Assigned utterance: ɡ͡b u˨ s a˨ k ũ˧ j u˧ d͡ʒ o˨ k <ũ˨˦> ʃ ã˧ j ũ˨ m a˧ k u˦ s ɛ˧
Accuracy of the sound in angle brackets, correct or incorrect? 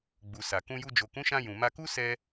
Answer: correct